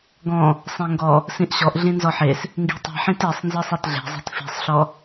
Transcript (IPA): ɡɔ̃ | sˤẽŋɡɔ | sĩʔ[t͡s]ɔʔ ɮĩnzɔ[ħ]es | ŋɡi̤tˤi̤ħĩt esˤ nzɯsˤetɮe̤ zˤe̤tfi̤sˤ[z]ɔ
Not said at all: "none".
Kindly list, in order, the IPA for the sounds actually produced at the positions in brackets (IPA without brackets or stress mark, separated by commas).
ɕ, ħ, ɬ